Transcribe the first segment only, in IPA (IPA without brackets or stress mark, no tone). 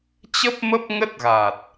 t͡ɕ